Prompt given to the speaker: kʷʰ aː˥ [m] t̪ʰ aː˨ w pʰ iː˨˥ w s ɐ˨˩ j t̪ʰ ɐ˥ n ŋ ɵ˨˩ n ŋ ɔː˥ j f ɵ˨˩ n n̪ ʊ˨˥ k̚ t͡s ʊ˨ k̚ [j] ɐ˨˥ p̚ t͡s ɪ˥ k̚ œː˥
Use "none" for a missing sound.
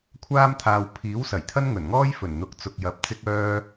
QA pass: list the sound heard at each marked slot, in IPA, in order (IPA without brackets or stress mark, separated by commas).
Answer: m, j